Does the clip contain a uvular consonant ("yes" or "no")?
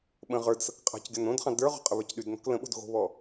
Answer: yes